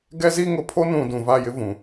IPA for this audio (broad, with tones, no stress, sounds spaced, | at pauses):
ɡ ɛ˦ z i˦ ŋ ʊ˨ pʰ o˦ n ũ˨ d ũ˨ v a˦˨ j ɪ˦ v ũ˨